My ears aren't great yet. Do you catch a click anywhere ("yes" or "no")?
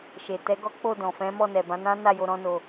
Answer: no